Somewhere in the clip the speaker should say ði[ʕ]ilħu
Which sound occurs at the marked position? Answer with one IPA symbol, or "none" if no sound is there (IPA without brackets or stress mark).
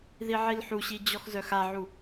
ʕ